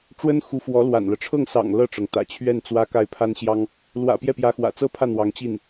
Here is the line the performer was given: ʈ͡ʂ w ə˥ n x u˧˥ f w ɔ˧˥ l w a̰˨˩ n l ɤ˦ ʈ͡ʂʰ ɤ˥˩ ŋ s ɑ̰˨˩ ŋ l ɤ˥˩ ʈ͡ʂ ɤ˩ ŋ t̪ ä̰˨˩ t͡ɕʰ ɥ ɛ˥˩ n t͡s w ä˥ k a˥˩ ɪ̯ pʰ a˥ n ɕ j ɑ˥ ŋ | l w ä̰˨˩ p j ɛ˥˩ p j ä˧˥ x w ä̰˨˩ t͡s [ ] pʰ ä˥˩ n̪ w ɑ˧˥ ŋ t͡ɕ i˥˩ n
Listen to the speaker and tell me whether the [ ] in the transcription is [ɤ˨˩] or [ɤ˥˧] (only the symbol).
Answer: ɤ˥˧